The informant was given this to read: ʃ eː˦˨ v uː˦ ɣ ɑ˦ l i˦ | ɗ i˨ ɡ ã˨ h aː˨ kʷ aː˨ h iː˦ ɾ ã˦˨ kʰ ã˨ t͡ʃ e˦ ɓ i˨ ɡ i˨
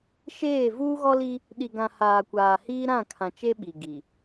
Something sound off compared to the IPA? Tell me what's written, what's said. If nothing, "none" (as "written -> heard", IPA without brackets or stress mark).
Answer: ɑ˦ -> ɔ˦